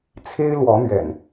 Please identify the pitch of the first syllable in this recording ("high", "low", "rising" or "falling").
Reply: high